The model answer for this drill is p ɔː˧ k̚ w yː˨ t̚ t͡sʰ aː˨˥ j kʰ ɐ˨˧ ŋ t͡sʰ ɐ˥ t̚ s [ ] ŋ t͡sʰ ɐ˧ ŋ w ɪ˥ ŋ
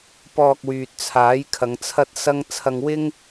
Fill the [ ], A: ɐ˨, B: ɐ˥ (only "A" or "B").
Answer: B